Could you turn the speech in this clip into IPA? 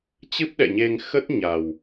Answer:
t͡ɕ ɨ˦˥ p̚ ɗ ɛ̰˧˨ ɲ e˧ ŋ x ə˦˥ t̚ ɲ a˨˩ w

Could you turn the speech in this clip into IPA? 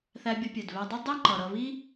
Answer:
θ æ˧ bʲ ʌ˧ pʲ ɛ˩ d β æ˧ dˤ ə˥ dˤ i˥ ŋ͡ǃ ʌ˩ ɾ ʌ˧ β i˥

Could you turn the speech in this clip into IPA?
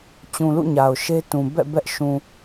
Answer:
t͡ɕ ũ˨ l ṵ˦˨ ɲ a˨ ʊ̯ ʃ e˦ t ũ˨ b ɛ̰˦˨ b ɛ˦ ʔ ʃ ũ˨

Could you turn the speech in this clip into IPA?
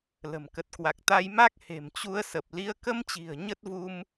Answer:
l ə̤˨˩ m k ə˨˩ t̚ k w a˨˩ k̚ t̪ a˧ j m a˦˥ k̚ h e̤˨˩ m t͡ɕ u˨˦ ə̯ s ə˨˩ p̚ l i˨˦ ə̯ k ə˧ m t͡ɕ i̤˨˩ ə̯ ɲ ə˦˥ t̚ v u˧ m

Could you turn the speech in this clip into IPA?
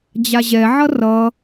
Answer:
d͡ʑ a ʑ ɛ ʕ ʌ r ʌ

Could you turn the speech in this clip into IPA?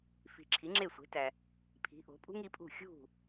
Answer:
f i̤˨ ǁʰ i˩˥ ŋ͡ǁ e˥˩ sʷ e̤˩˥ t æ˨ | pʰ i̤˩˥ ʔ o̤˩˥ pʼ ṳ˥ ŋ i˩˥ pʼ ṳ˥˩ xʲ ṳ˥˩

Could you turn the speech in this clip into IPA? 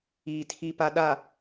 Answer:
iː˨ tʰ i˨ p a˨ ɗ a˨

